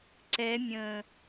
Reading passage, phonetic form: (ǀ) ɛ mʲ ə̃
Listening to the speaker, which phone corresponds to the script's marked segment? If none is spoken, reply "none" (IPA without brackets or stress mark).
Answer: ǀ